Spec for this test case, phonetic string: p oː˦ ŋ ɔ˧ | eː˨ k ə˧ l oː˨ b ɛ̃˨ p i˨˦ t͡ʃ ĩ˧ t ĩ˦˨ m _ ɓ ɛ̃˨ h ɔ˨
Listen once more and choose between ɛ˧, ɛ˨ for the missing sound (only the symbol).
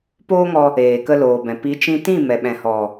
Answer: ɛ˨